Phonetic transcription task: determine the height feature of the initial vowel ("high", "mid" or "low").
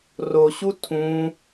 mid